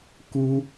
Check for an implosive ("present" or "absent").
absent